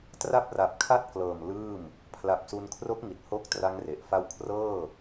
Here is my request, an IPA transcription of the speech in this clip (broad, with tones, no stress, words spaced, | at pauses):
tra˥˩p̚ra˨˩p̚kʰa˥˩t̚klɤː˨˩m lɯː˥˩m | pʰla˨˩p̚su˧nkʰro˦˥k̚ ŋi˨˩t̚ho˦˥k̚ tra˦˥ŋre˨˩ʔ fa˧w kʰrɤː˥˩